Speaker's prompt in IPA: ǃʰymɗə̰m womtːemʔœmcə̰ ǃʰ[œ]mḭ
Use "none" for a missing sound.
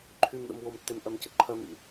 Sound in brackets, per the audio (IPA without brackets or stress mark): œ